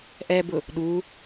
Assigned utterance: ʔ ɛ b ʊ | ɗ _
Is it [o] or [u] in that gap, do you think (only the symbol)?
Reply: u